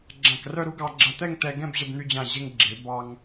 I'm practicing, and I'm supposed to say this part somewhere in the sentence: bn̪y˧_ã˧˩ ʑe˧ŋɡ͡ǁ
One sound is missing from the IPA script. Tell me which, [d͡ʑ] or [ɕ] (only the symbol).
d͡ʑ